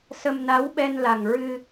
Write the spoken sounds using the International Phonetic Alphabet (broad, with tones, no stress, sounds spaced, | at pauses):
s ə˧ m n a˧˥ w ɓ ɛ˧ n l a˨˩ ŋ ɹ ɨ˧